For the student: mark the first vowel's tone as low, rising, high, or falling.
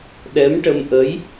rising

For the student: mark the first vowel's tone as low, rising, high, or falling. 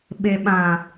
low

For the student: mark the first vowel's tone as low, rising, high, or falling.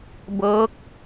rising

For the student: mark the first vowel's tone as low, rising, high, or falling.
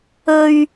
low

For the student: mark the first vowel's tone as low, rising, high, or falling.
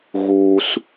high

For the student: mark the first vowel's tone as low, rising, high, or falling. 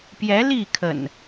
rising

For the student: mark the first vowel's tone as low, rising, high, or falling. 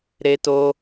high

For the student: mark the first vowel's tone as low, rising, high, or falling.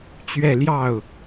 falling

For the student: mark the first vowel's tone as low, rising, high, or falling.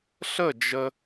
falling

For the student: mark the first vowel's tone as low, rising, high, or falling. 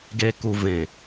low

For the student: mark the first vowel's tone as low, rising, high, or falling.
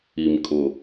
low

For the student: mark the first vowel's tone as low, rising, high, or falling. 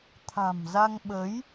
low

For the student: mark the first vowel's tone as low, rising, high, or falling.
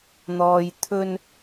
low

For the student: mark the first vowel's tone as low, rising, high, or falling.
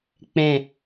low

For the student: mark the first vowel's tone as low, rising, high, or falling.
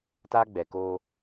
high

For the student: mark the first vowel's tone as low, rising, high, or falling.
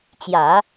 low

